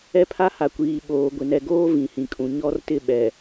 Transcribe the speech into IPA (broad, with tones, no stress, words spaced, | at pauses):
ɛ˦pʰa˦ha˨kʷiː˨ ɓoː˨ɡʷɪ˨nɛ˨ɡoː˦ vĩ˨hĩ˨kʼũ˨ ɲɔ˦rtɪ˦˨ ɓɛ˨